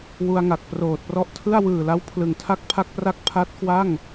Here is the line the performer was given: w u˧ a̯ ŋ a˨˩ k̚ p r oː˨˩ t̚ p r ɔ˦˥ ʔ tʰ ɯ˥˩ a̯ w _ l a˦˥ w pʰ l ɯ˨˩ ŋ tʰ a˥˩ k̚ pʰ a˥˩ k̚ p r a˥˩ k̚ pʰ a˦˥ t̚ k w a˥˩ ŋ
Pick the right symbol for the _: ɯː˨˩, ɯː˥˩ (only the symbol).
ɯː˨˩